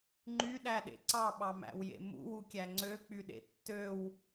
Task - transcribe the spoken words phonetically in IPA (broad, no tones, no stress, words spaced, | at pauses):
ŋ͡ǃyɗæɗḛ ǀɑɓɑmæ̰wjḛ mṵwukʲæ ŋ͡ǀøk͡pyɗḛ tːøw